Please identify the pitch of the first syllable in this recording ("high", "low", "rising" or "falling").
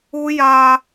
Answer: high